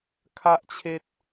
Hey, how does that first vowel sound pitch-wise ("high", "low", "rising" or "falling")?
high